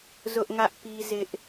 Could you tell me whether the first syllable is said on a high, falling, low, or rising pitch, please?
high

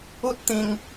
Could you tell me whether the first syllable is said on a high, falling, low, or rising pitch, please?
high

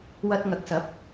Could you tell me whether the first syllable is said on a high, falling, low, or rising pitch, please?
high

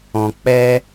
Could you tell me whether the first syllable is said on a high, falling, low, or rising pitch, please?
low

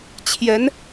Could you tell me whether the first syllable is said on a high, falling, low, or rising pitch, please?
rising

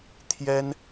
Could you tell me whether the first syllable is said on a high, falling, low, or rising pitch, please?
high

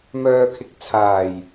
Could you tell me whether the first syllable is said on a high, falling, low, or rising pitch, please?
low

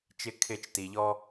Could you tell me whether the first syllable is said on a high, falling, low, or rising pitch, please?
falling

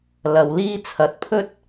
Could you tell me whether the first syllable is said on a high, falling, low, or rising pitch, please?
low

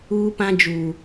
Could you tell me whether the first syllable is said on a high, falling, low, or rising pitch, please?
high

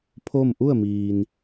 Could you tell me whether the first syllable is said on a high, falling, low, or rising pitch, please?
falling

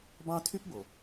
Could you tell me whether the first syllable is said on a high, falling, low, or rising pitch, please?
high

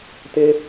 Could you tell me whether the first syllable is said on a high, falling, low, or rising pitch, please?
high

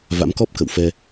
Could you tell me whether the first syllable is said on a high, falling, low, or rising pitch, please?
rising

